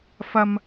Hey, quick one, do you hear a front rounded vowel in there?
no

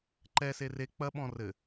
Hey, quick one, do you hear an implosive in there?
yes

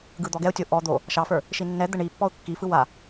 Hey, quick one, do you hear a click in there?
no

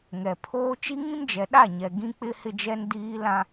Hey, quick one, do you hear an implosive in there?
yes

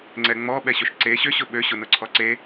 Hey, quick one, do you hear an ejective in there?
no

